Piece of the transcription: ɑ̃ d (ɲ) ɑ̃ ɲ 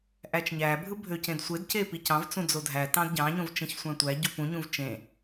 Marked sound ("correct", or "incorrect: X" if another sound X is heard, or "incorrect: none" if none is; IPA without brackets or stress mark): incorrect: ɟ